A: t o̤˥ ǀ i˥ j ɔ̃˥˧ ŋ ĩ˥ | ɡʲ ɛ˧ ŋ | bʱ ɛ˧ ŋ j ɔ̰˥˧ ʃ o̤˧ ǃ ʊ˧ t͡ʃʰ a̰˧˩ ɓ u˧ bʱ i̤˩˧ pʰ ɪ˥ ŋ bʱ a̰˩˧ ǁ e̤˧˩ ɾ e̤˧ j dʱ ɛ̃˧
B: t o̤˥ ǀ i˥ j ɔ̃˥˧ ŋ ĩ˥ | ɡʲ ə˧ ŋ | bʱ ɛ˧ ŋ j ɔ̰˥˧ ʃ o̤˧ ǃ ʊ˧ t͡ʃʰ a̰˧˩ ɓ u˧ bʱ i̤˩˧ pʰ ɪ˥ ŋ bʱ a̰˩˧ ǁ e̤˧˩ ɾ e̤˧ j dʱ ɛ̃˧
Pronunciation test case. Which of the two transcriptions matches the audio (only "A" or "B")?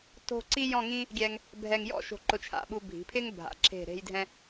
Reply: A